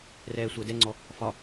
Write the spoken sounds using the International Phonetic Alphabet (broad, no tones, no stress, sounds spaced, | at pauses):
r ɛː sʷ əː d ɛ ŋ͡ǀ ɔ | f ɒ